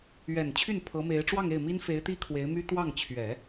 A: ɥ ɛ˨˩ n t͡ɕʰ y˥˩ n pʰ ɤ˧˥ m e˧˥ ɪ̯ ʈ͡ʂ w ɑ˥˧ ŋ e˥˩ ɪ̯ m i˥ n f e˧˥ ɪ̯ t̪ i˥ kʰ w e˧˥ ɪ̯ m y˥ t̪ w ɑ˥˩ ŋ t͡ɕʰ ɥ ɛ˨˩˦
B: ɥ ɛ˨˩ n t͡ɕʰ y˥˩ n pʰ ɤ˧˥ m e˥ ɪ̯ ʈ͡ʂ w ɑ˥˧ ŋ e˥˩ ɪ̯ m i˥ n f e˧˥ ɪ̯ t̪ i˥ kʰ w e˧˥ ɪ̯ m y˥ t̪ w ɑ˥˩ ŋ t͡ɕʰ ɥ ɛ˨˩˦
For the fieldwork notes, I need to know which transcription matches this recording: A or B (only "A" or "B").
A